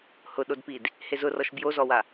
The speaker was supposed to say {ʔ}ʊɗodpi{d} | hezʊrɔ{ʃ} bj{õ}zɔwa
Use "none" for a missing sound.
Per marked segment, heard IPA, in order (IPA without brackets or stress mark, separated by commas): h, d, ʃ, o